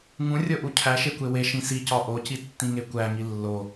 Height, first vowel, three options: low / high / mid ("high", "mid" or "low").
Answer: high